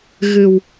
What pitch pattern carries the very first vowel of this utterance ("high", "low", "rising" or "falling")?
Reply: low